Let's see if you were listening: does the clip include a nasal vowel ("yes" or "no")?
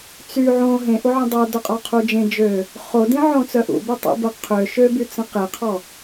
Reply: yes